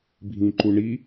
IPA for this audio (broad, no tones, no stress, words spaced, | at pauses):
bʱĩǃuɳi